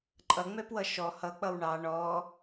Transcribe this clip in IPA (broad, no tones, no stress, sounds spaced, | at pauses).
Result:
ǃʼ ʌ ŋ͡m ɛ p w ʌ ʃ ɔ h ʌ k͡p ʌ w ɳ ɑ ɳ ɔ